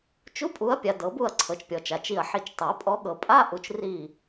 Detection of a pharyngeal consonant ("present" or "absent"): present